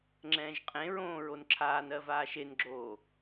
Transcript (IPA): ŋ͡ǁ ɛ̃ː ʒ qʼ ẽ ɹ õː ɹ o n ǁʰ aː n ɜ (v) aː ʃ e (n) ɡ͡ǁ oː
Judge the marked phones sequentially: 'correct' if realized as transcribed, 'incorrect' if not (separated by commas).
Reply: correct, correct